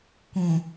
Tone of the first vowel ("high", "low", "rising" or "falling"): low